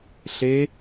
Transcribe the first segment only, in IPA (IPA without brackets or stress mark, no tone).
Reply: ɬ